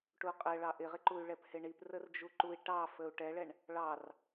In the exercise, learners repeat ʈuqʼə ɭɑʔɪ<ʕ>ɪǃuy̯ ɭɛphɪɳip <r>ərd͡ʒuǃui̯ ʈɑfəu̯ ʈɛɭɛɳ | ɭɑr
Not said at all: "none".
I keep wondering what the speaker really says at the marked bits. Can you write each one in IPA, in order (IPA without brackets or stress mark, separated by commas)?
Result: ʁ, r